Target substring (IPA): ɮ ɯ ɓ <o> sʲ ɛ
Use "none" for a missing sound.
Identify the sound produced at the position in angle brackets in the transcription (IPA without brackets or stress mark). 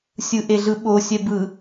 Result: o